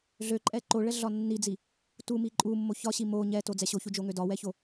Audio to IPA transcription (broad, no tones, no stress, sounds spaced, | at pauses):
ɮ ø ǃʼ ɛ ǃ o ɭ ɛ ɮ ɒ nː i d͡z i | t u m i ǃʼ u mː o ç ɒ ɕ i m o ɲ ɛ t o d͡z ɛ ɕ o ç u d͡ʒ o ŋ ø d ɒ w ɛ ç o